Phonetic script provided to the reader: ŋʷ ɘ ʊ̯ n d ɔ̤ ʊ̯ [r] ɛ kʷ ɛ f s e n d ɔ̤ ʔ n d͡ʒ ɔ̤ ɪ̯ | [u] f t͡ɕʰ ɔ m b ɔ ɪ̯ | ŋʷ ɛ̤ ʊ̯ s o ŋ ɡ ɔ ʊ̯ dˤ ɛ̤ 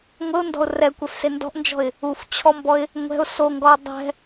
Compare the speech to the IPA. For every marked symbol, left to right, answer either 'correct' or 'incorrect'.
correct, correct

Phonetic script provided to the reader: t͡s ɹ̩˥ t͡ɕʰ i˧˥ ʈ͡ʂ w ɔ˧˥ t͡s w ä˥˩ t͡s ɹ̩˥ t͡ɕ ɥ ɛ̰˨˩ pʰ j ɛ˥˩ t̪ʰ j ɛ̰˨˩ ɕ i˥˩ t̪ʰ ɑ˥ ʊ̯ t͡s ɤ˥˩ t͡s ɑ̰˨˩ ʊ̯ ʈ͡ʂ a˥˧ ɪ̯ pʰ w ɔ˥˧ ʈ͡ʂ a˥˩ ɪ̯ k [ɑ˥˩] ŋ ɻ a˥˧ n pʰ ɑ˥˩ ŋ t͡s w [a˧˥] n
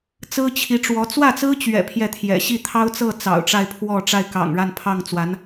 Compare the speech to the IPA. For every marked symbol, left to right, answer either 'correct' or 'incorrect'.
incorrect: ɑ̰˨˩, correct

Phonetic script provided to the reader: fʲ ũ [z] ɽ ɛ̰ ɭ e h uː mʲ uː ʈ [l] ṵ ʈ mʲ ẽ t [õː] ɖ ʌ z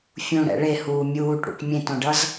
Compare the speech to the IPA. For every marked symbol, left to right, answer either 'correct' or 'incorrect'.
incorrect: none, incorrect: ɽ, incorrect: õ

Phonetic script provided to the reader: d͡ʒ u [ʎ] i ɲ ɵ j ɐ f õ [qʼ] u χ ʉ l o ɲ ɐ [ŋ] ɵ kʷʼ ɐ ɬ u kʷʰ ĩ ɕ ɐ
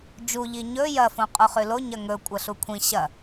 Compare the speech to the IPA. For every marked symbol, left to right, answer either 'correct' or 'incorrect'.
correct, correct, correct

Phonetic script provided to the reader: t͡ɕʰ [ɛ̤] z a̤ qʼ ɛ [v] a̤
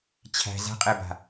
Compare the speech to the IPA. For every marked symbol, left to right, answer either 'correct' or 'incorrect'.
incorrect: æ̤, incorrect: b

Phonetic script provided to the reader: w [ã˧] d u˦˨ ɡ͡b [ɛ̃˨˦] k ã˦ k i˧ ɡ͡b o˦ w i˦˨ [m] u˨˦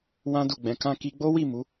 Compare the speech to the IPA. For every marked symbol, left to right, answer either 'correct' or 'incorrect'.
incorrect: ã˦, correct, correct

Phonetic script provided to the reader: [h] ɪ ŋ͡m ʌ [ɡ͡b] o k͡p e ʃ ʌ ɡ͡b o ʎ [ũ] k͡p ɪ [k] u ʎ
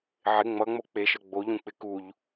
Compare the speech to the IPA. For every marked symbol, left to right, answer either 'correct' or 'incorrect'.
incorrect: ʕ, incorrect: ŋ͡m, correct, correct

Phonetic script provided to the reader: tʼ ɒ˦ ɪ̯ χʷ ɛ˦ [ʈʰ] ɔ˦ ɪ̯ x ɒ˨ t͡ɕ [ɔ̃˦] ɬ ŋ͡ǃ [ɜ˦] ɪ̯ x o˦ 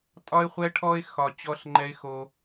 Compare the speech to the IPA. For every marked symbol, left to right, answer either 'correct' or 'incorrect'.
correct, incorrect: ɔ˦, incorrect: ɛ˦

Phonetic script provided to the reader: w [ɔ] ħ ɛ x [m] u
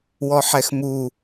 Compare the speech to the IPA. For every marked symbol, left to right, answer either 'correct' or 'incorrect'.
correct, correct

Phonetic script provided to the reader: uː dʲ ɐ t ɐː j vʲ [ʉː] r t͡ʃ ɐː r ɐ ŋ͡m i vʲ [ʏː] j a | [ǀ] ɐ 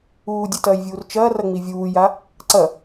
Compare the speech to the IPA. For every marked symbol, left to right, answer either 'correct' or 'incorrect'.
incorrect: uː, incorrect: uː, correct

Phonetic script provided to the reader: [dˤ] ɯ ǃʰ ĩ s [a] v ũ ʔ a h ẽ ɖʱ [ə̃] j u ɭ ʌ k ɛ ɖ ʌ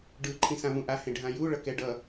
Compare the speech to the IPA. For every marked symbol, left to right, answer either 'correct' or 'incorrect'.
incorrect: ɖ, incorrect: ã, incorrect: ã

